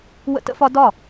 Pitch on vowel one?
high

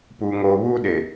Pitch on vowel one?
low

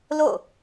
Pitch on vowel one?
falling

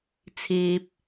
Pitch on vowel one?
high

